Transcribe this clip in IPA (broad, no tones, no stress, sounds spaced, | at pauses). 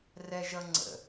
r ɛ ʒ ʌ ŋ͡ǀ ə̰